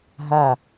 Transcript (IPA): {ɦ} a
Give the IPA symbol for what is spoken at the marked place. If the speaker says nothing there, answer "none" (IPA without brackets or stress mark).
ɦ